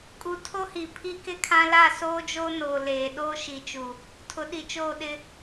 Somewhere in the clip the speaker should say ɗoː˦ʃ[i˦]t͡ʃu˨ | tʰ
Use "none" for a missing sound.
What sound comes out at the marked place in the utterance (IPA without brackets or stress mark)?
i˨